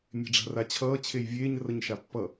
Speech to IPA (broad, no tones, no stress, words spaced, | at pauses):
mʲe̤ɖ͡ʐa̤rat͡ɕʰʌː t͡ɕʰejvʲeːɲ rʌɲʃapːʌ